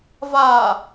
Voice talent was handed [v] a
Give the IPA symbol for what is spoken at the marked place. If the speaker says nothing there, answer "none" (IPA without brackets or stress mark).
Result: v